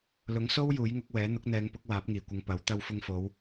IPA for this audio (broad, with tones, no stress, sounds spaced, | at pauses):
l ʊ˨˥ ŋ s o˥ w j uː˨˥ j ŋ ʊ˨˥ k̚ w ɛː˨˥ n̪ ʊ˨˥ k̚ n̪ ɛː˨˧ ŋ p ʊ˨˥ k̚ w aː˨˥ p̚ ŋ iː˨˩ kʷ ɪ˨˧ ŋ p ɐ˨˥ w t̪ ɐ˧ w f ʊ˧ ŋ f o˨˧ w